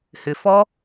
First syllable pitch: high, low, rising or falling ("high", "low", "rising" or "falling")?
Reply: low